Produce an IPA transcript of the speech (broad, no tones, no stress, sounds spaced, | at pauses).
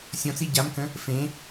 sʲ ɔ̃ t͡s i ɟ a m k ə̃ | f ẽ